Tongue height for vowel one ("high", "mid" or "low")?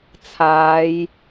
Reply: low